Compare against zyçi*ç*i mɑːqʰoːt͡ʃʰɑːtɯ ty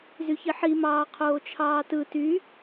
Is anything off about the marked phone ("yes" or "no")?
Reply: yes